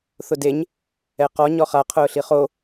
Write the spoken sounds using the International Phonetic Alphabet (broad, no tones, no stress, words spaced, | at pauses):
θʊdeɲ | ɛqɔ ɲɔχa qʰʊːɬiχo